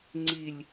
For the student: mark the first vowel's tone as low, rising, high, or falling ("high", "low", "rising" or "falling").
low